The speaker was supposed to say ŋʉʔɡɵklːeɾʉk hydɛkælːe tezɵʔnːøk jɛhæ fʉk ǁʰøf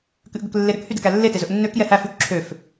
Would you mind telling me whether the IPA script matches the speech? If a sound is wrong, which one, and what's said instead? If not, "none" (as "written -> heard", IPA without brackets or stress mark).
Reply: ŋ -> k